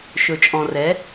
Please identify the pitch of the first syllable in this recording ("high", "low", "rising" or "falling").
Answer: low